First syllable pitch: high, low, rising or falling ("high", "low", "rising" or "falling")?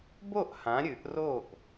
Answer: falling